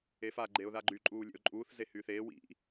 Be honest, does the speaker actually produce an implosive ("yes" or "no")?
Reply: no